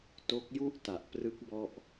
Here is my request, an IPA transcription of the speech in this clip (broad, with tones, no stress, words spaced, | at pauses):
to˦˥k̚ju˥˩ʔta˨˩ʔprɯ˦˥k̚ bɔ˥˩ʔ